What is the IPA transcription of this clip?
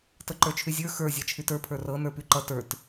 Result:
tɤǃə˞t͡ʃʰyzʲə˞ xə˞ zʲat͡ʃʰytə˞ pʰə˞rɤ nə˞pyǃʌ tə˞t

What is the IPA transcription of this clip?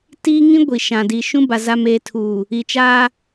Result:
tiː˦ŋĩ˦ ɡʷi˨ʃã˨di˨ ʃũ˦ba˨ za˨meː˨tʰuː˨ | i˨t͡ʃaː˦

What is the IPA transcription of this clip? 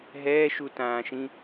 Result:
ɦɛːʃutãːʃĩ

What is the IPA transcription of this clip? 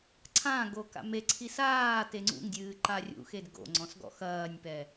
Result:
ǀʰãɡo ka̰meǀʰi saː teŋ͡ǀṵŋdʲɨː ǃarʲṵxed ɡo̰ŋ͡ǀɔ̃s ɡɔ̰xɐːnʲpɛ

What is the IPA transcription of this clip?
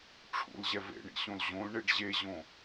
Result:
ʈ͡ʂʰṵlʑɛ vḛɳḭɕõl ʑõlɳeɖ ʑeʑõ

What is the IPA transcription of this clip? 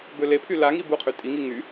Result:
bølepʰy laŋi buqʰy tʼiŋi ŋy

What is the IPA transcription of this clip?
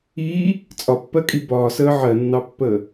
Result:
iː | t͡sʼɒpːɜkʼi bɒːsəː ʕɜnːɑpːəː

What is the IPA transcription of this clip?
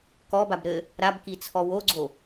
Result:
kɔbab ɾɘ | ɾabkit͡sʰɔ woɡ͡ǀo

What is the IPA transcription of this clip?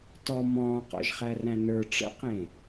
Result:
tɔ mɔ̃ːqɔ̰ʒχæræ̃ nə˞ ʈ͡ʂə̰qẽ

